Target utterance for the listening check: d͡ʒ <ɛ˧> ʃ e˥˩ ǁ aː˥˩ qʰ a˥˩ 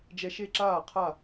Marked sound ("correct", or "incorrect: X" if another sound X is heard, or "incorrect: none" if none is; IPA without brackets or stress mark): correct